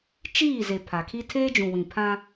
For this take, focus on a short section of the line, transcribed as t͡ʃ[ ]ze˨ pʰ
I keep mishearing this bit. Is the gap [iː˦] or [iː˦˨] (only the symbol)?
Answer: iː˦˨